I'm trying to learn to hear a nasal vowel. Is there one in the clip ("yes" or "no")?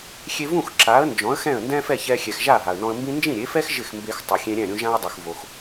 yes